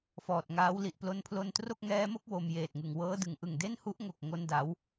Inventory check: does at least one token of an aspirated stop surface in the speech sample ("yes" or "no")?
yes